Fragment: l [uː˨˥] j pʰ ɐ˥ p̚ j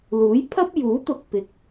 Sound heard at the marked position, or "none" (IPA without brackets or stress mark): uː˨˥